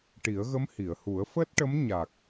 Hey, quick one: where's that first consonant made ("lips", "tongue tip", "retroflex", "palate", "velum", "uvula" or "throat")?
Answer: retroflex